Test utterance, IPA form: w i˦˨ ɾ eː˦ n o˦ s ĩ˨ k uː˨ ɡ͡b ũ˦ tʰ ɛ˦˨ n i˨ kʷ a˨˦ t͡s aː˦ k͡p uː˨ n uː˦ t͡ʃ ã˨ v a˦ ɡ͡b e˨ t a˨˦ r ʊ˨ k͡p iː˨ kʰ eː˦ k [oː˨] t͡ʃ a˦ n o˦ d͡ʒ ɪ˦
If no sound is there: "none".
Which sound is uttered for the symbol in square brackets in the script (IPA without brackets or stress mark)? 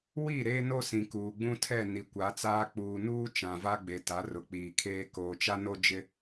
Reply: oː˨